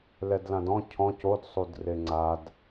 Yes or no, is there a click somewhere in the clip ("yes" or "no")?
yes